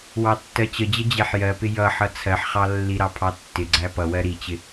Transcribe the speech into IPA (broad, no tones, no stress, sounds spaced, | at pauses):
w ɑ tː ɜ t͡ɕ ə d͡ʑ ə d͡ʑ ɛ ħ j ɜ p ɪ j ʌ ħ ʌ t͡sʰ ɜ ħ χ ɑ lː i ɾ ɑ pʰ ɑ tː ɪ ɡ͡ǀ æ p ʌ w ɜ ɾ i t͡ɕ ɪ